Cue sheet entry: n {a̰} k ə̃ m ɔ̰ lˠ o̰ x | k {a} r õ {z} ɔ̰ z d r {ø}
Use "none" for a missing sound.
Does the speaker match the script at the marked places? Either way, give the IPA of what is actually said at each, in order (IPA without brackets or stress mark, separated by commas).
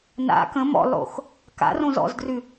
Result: a̰, a̰, z, ʉ